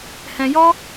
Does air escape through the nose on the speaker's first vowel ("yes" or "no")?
yes